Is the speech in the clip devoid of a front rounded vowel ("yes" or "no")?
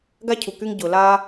no